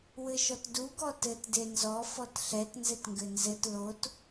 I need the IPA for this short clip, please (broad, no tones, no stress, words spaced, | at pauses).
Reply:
wɘʃɔtdu ɡɔtɘt denzɔ fɔtɬɛt nzɘtŋɡɘnzɘt lot